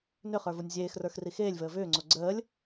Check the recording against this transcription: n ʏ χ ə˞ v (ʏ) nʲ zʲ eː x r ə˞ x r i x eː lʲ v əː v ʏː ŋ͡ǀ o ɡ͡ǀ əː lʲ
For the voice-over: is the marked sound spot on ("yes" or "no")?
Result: no